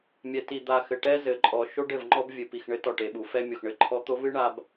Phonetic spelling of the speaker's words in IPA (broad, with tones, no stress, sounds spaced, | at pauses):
mʲ ɛ˨ t i˨ d̪ a˨ x ɘ˨ ʈ ɛ˦ z ɘ˨ ǃʼ ɔ˨ ʃ o˦ ɖ ɘ˦˨ v ŋ͡ǃ ɔ˦ b vʲ ɨ˨ p i˨ x ɳ ɘ˦ t ɔ˦˨ ʈ e˨ ɓ u˨ f ɛ˦ mʲ o˨ x ɳ ɘ˦ ǃʰ ɔ˦ t̪ o˦ v ɨ˦ ɳ a˨ b